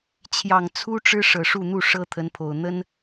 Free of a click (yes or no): yes